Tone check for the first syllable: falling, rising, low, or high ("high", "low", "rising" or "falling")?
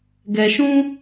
low